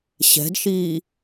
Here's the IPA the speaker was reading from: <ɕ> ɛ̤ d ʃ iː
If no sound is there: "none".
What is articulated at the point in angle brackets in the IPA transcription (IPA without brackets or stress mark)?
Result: ɕ